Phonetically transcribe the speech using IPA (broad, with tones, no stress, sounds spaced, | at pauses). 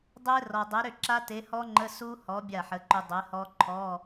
dˤ e˦˥ r ɔ˨ dˤ e˨˥ ɾ ʏ˥˩ ǁ a˦˥ t e˨˥ h ɔ˦˥ ŋ͡ǃ ə˧˥˧ s u˦˥ h ɔ˨˥ bʲ a˥˩ ħ ə˨˥ ǃ ʏ˨ dˤ e˨˥ h ɔ˦˥ ǃʰ ɔ˧˥˧